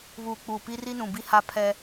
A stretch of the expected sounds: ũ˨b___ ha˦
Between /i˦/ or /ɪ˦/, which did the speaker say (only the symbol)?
i˦